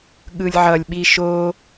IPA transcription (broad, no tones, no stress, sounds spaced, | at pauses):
ɠ ɯ lʲ ʕ ʌ lʲ ɓ i ʃ o